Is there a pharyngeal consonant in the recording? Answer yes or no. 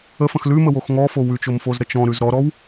no